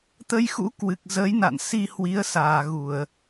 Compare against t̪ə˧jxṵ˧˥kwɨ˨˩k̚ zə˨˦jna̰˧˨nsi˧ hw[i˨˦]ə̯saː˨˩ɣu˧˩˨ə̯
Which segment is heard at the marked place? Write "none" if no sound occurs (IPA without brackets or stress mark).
i˨˦